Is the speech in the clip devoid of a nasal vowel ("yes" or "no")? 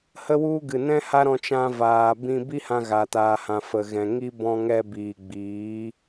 no